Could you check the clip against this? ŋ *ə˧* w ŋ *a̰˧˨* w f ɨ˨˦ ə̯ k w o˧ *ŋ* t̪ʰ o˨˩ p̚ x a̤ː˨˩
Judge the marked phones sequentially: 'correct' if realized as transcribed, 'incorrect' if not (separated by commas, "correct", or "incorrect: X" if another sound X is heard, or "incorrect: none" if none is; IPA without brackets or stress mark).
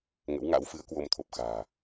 incorrect: ə̰˧˥, incorrect: a̰˧˥, incorrect: m